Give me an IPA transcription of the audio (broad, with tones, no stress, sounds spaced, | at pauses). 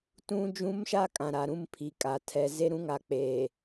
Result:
t ũ˦ d͡ʒ ũ˦ m ʃ a˦ kʼ ã˨ ɾ a˨ ɾ ũ˦ m pʰ i˨ kʼ a˨ tʰ ɛ˨ z e˦ ɾ ũ˦ ŋ a˨ k͡p eː˨